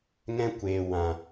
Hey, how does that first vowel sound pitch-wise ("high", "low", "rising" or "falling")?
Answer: high